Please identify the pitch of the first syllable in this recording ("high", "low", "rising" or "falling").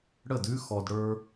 falling